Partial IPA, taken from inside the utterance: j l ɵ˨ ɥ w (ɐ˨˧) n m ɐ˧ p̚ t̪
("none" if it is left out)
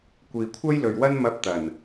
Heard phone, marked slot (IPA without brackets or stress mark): ɐ˥